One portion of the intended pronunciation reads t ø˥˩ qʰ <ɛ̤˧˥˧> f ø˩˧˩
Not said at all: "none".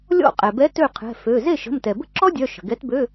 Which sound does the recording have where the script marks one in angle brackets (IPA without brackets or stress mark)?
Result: ɛ̤˩˧˩